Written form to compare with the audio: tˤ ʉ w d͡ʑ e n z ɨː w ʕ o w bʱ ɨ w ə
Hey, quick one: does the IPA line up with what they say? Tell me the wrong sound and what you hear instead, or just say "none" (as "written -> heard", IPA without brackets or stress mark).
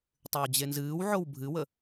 none